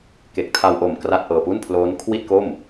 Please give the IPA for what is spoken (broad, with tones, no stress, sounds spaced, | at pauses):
k e˨˩ k̚ tʰ a˧ w ʔ o˨˩ m k r a˥˩ t̚ ʔ ɤː˧ p u˥˩ n pʰ l oː˦˥ n kʰ w i˥˩ t̚ k o˥˩ m